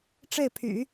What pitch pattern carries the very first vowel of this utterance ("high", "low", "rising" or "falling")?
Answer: falling